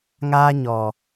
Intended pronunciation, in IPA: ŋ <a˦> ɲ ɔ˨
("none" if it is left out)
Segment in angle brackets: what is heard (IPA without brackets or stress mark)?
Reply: aː˦